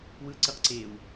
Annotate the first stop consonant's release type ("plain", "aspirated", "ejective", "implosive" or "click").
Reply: click